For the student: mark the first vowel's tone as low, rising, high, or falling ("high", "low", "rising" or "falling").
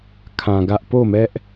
low